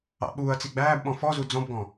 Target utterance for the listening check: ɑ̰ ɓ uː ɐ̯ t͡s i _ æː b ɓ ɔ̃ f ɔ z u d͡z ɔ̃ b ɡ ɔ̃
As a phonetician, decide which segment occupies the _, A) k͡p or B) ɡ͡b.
B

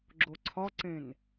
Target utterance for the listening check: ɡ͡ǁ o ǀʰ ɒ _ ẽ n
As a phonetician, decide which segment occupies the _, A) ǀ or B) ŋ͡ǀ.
A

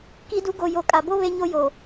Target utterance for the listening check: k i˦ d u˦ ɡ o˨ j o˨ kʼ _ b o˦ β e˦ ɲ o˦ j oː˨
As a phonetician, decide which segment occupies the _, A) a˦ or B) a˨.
B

